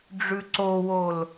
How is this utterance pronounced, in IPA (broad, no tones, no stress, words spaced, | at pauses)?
ɖ͡ʐʉǀowol